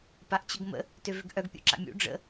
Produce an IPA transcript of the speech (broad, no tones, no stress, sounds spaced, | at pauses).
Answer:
p a ʔ t͡ɕ ʊ ɡ m ə̰ | t ø v ʏ ɡ ʔ œ ɡ pʲ ṵ ǁ a̰ mʲ ṵ ɖ͡ʐ ə̰